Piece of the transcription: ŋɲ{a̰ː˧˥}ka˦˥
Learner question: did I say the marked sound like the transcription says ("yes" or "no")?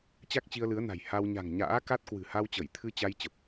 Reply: yes